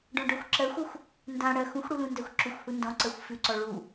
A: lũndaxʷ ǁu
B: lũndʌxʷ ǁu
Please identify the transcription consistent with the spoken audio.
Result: A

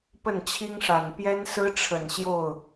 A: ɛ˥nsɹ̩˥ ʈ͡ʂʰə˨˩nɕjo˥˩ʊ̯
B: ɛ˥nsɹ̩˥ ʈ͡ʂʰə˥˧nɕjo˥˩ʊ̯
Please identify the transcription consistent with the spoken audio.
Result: A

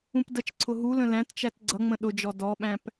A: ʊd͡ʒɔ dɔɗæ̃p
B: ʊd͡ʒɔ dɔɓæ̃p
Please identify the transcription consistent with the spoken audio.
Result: B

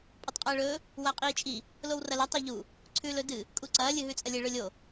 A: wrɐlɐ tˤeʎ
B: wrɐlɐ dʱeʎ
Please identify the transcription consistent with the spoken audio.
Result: A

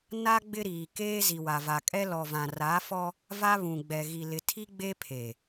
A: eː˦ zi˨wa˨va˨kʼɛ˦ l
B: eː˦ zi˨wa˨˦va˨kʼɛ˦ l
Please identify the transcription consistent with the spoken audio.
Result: A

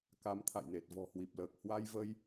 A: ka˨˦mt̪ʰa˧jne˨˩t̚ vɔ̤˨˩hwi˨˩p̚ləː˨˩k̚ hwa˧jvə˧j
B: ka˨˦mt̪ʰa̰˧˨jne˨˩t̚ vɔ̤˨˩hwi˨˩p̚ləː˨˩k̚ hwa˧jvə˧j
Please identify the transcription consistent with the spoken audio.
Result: B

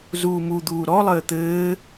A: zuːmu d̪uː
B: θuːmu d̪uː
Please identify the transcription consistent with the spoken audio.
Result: A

